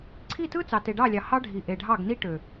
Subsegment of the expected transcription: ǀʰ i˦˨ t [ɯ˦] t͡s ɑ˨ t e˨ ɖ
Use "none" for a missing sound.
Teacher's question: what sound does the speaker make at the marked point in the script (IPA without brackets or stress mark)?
ɯ˦